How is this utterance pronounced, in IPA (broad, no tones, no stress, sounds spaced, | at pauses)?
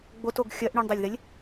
ɡ͡b o t o ɡ xʲ ɜ ʔ ɳ y ɳ dˤ e lʲ ð e lʲ